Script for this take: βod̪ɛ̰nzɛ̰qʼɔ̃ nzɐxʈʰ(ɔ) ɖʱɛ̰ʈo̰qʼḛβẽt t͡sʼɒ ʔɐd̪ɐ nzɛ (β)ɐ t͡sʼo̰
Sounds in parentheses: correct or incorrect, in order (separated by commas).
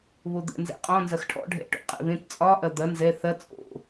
incorrect, incorrect